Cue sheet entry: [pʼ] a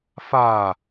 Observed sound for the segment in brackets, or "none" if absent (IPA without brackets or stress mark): f